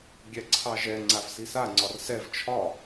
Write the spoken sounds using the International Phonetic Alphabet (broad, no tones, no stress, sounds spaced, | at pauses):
ɡʲ ɛ ǀʰ ɑ ʒ ɛ ŋ͡ǀ a v s i s a ŋ͡ǀ ɒ r s ɛ v t͡ʃʰ ɒ